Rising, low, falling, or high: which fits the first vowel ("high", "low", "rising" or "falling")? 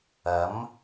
rising